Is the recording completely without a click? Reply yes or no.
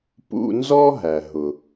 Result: yes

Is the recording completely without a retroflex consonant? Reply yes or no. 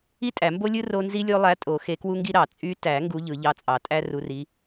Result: yes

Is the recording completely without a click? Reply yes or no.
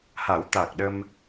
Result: yes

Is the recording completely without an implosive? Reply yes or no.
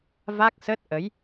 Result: yes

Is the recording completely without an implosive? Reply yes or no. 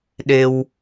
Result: no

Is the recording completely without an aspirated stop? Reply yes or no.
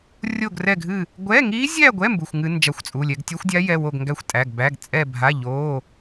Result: yes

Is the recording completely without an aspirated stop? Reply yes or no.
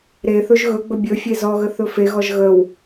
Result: yes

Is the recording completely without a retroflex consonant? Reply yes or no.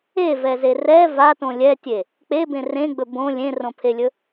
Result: yes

